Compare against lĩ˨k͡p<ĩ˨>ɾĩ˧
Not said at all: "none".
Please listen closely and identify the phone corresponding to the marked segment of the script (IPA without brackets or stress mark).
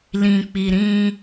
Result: i˨